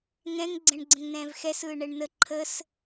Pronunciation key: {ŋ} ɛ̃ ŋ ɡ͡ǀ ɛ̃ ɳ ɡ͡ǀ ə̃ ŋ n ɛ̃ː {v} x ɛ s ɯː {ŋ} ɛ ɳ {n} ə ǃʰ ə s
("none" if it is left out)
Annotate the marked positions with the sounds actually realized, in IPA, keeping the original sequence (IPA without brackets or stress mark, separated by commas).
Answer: ŋ, v, ɳ, n